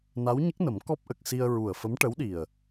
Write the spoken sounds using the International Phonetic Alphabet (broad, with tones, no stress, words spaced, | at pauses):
na˧˥wɲə˦˥k̚nə˨˩˦m kɔ˦˥p̚ʔə˨˩k̚si˧ə̯ ɹu˨˩ə̯fə˧˥mʈə˧˥wɗi˨˩ə̯